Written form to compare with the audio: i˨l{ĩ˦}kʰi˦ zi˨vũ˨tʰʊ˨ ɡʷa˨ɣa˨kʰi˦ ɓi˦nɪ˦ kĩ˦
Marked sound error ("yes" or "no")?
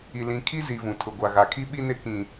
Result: yes